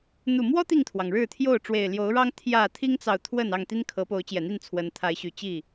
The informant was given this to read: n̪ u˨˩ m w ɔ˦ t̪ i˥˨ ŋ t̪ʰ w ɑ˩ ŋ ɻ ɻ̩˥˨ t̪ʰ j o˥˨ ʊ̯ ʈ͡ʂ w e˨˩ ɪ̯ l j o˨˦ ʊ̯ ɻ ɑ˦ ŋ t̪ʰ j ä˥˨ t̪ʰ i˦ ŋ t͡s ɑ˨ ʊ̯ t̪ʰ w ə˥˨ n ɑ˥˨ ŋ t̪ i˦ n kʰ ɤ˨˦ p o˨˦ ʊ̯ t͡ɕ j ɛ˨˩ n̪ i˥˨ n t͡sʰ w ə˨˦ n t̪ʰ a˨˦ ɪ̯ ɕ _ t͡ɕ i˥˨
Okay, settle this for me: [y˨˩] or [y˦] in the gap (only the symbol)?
y˨˩